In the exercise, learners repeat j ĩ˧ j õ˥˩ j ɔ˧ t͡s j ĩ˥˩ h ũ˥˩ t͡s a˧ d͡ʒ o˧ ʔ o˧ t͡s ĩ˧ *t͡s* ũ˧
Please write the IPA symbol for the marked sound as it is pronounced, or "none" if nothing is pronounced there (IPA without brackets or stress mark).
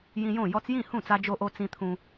t̪ʰ